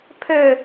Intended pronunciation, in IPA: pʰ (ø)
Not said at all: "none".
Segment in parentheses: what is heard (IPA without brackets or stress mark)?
ø